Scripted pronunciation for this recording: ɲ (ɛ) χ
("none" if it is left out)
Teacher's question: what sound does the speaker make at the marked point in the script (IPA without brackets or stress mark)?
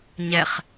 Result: ɛ